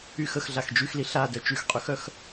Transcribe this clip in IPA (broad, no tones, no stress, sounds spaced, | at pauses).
y x ə x ɮ a x d͡ʒ y x l i ɬ a d œ t͡ʃ y x qʼ y x œ x